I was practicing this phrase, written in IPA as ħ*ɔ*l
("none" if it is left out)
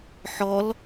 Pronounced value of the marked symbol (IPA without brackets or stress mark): ɔ